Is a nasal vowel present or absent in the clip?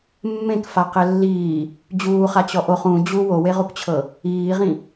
present